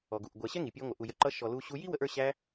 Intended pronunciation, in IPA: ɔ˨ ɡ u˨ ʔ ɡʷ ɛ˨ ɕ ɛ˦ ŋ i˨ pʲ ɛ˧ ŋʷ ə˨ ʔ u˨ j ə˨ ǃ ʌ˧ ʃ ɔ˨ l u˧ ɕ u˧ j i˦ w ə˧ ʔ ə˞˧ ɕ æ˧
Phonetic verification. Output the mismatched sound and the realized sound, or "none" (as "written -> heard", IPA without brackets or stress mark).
none